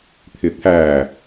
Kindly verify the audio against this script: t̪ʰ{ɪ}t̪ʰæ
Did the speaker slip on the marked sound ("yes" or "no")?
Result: no